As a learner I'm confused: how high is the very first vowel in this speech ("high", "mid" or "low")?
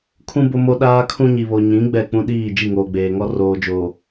high